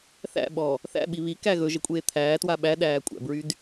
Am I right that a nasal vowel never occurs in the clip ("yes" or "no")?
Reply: yes